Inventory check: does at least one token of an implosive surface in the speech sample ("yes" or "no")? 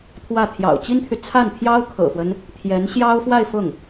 no